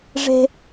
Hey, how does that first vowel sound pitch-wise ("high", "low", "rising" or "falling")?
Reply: high